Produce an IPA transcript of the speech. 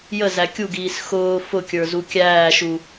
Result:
j ə z æ kʲ u ɡ iː s x ʊː f ʊ kʲ ə˞ z u kʲ æː ʃ u

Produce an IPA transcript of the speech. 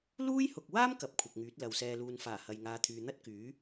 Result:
l uː˥ j h ʊ˨ k̚ w aː˥ m k ɐ˨˥ p̚ kʷʰ ɐ˨ k̚ ŋ yː˨˥ t̚ l ɐ˨ w s ɛː˧ l uː˧ n f aː˨˩ h ɐ˨ j ŋ aː˨˧ t̪ʰ yː˨ n̪ ɐ˥ t̚ k yː˨˥

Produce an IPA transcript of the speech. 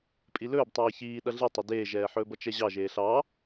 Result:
pʼ i l ɵː b tˤ ɛː ç iː ɗ ʌ ɮ i tˤ ɵ d eː ʒ ɛː ħ ɵː b ʌ t͡ʃ ɛ ʑ ɑ ʒ eː ɬ ɑ

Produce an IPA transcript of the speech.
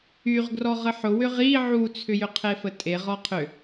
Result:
y ʁ ɡ r ɔ ʁ ə ħ ʊ w ʏ ʁ i ʕ u t͡sʰ ʏ j ʏ qʰ e f ə tʼ e ʁ ɔ qʰ ʏ

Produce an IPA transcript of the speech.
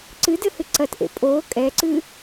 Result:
ǀ ɨ d ɘ h ɨ ǀ ɐ t ʔ ḛ pʼ oː kʼ ɛ ǀ ɨ

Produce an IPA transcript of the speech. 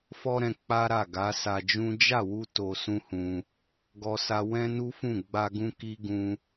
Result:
f ɔ˦ ɾ ɛ̃˧ k͡p a˦ ɾ a˦˨ ɡ a˨˦ s a˧ d͡ʒ ũ˦ d͡ʒ a˦˨ w u˧ t o˧ s ũ˦ h ũ˧ | ɡ ɔ˧ s a˧ w ɛ̃˦ n u˦ f ũ˦˨ ɡ͡b a˧ ɡ ũ˧ k i˦ ɡ ũ˧

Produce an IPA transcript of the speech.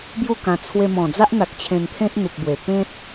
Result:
b j u˥˧ k ã˧ t͡sʰ w e˧ m ɔ̃˨˩ d͡z a˦ ʔ n̪ a˨ k̚ t͡ɕʰ ẽ˧ n pʰ ẽ˦ t̚ n̪ u˨ k̚ b w e˨˩ p ẽ˦ t̚

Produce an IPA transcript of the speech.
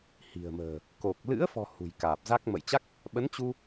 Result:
h i̤˨˩ ə̯ m ə̤ː˨˩ | k o˨˩ k̚ l ɨ̰˧˥ ə̯ f ɔ̤˨˩ h ṳ˨˩ j k aː˨˩ p̚ z a˦˥ k̚ m ə̰˧˨ j t͡ɕ a˦˥ k̚ | ɓ ə˨˦ n t͡ɕ u˧

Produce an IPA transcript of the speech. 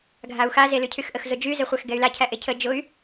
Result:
ɡʱ a u̯ x a z e l y cʰ y x ʔ ə x z ʊ d͡ʒ y z ɛ χʷ æ x ɡ ɛ y̯ l a cʰ æ ʔ e cʰ ə d͡ʒ ʊ y̯

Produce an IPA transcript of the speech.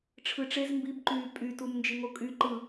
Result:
ʈ͡ʂʰ ɯ ʈ͡ʂ e z m b i b ǃ yː pʼ y t u m n d͡ʒ i ŋ o kʼ y ǃ ɯ

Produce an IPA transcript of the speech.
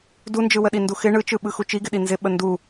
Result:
d u n d͡ʒ ɯ w ə ɗ i n d u x ɪ ɳ ɯ t͡ʃ ɯ ɓ ɯ x u t͡ʃ i ɡ ɪ ɗ i n z ɪ ɓ ə n d u

